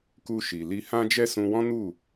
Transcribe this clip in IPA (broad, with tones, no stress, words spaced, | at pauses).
ku˧ʃi˨li˧ hã˦d͡ʒɛ˦ sũ˧wɔ̃˦nu˦˨